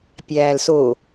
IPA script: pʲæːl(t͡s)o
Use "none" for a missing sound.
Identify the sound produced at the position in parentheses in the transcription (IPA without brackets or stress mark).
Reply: s